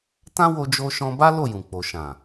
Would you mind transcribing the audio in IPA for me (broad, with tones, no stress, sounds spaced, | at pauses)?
t ã˦ w o˧ d͡ʒ o˧ ʃ ɔ̃˧ b a˦ l o˦˨ j ũ˨ k͡p o˨ ʃ ã˨